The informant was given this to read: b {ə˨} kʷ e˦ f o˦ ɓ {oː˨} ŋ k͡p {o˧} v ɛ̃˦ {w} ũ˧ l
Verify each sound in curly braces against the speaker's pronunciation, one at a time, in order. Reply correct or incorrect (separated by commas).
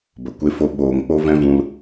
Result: correct, correct, incorrect, incorrect